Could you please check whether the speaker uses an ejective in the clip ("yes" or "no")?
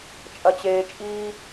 yes